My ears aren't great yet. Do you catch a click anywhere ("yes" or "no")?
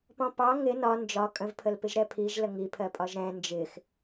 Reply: no